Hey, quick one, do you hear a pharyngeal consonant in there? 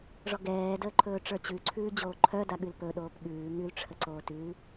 no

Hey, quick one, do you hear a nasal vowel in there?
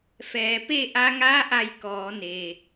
no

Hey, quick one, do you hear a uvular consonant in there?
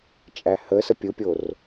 no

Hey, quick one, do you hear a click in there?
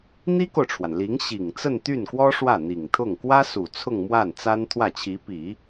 no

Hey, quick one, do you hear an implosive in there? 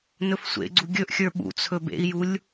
yes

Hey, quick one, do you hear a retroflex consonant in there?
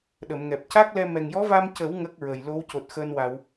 no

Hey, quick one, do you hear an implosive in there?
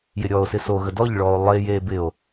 no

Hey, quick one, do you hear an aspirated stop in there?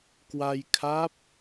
yes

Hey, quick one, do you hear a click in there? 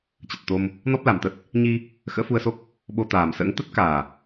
no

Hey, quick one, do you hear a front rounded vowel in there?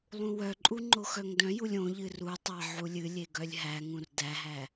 yes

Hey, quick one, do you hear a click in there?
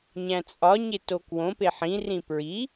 no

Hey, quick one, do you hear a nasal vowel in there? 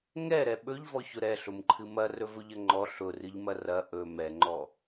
no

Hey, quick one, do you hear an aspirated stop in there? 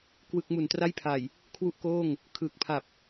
yes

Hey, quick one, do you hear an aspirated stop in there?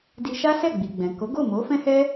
no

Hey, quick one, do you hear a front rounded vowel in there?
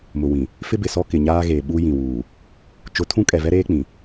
no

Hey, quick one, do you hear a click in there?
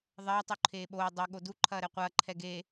yes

